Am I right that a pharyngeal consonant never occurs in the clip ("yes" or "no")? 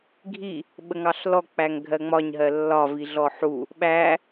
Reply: no